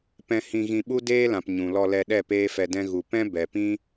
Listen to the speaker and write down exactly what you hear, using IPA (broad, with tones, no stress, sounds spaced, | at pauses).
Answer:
p ɛ̃˧ h ĩ˧ ɣ ĩ˧ ɓ u˦ d eː˦ l ã˨ p ɲ ũ˨ l ɔ˧ l ɛ˧ ɗ ɛ˦˨ p eː˦ f ɛ˧ d ɛ̃˦ ɣ u˨ p ɛ̃˦ b ɛ˨ p ĩ˦